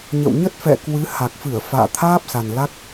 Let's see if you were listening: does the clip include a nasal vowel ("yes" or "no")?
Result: no